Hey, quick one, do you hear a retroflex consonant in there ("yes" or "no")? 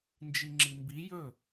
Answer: no